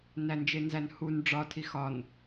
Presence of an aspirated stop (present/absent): present